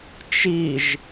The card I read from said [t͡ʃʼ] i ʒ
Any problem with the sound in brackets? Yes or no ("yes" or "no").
yes